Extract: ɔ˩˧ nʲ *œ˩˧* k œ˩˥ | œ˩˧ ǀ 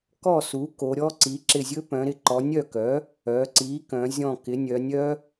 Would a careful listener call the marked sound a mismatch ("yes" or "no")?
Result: yes